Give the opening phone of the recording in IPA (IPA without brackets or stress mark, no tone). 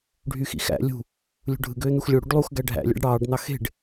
ɖʱ